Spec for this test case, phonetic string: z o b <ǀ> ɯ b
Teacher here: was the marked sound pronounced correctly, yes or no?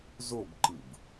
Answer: no